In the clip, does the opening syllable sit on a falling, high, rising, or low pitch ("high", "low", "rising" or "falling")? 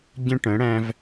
high